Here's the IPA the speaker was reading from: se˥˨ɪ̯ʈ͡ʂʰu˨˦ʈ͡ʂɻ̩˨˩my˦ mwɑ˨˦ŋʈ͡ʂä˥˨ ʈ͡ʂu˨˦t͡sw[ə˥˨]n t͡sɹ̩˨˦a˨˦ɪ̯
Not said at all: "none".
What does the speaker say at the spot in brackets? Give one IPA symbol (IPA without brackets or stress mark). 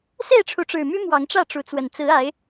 ə˨˩